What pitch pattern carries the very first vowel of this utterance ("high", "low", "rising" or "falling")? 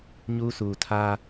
high